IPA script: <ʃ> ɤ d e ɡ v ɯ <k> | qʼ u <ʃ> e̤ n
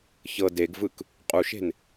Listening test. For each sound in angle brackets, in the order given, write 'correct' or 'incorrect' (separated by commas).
incorrect, correct, correct